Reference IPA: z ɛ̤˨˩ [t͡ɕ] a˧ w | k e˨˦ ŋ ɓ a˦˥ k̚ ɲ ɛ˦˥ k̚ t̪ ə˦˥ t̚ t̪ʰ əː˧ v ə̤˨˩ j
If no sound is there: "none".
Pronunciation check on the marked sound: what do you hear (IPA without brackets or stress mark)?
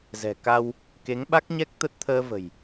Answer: k